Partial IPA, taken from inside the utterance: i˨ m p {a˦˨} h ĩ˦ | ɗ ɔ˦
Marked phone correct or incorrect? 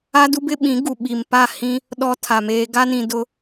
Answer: correct